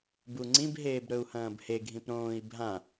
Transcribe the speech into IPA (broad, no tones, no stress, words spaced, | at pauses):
buŋ͡ǀĩb ɦeːbɾɵu̯hɐ̃ːbhe ɡʱĩpɾõːi̯ bʱã